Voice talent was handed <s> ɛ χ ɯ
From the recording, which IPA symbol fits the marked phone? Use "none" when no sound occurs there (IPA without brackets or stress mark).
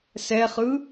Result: s